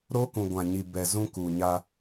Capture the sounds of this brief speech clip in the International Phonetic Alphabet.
ɾ o˦ k ũ˨ ɡʷ ã˨ ɲ i˨ b ɛ˨ z ũ˦ k u˨ ɲ a˦

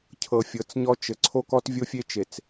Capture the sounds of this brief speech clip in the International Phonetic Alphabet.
cʰ ɤ˨ fʲ ɤ˨ t͡s ɲ ɔ˦ t͡ʃ ɘ˨ ǀʰ o˦ k ɔ˦ t vʲ o˦ fʲ e˦ t͡ʃ e˨ t͡s

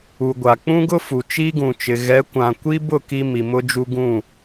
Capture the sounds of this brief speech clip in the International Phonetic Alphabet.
u˨ ɡʷ a˨ k͡p ũ˦ ɡ ʊ˦ f u˨ t͡ʃ iː˦ ɡ ũ˨ t͡ʃ ɪ˨ ɣ ɛ˨˦ kʷ ã˨ kʷ i˦ b ʊ˦˨ k i˦ m i˨ m ʊ˦ d͡ʒ u˦ ɡ ũ˦˨

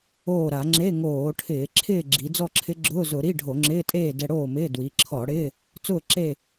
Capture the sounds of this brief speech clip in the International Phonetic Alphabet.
oː˥˨ ɾ a˧˩˧ ŋ͡ǁ e˧˥˧ ŋ oː˧˩˧ ʈʰ ɪː˧˩˧ ǁʰ ɪː˥˨ ɡ͡ǁ i˩˧ d͡z ɔ˥˨ ǁʰ ɪ˧˥ ɡ͡ǁ ʊː˧˥˧ z ʊ˧˩˧ ɾ i˧˥˧ ɖʱ o˧˩˧ ŋ͡ǁ ɪː˧˥˧ tʼ eː˥˨ d ɛ˧ ɽ oː˥˨ m ɪː˧˥˧ d w i˩˧ ǁʰ ɔ˧˩˧ ɽ ɪː˧˥˧ | t͡s ʊː˥˨ ǁ e˥˨

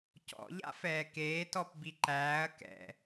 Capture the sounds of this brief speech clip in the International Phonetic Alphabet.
c ɔ̰ ʎ a̰ f ɛː k eː t ɔ p b i ǃ æː ɐ̯ k ɛ̰

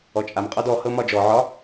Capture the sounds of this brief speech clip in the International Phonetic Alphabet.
ɔ t͡ʃʼ a m qʼ ɒ d ɔ h ɤ m ɒ d͡ʒ ɔ ʕ ɒ

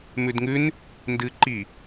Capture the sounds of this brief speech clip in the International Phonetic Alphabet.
m ʉ d ŋ ʉ n | n d ɨ ǃ i

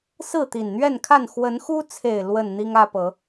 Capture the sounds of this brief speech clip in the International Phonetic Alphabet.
s ɹ̩˥˨ t̪ i˨˩ n n̪ ɥ ɛ˥˨ n kʰ a˥˨ n x w ə˨˦ n x u˦ t͡sʰ e˨˩ ɪ̯ l w ə˥˨ n n̪ i˦ ŋ ä˦ p ɤ˨˦

